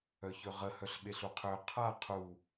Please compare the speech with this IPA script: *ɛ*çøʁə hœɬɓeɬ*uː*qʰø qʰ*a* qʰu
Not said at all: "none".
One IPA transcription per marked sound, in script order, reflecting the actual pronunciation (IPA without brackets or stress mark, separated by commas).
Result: œ, u, a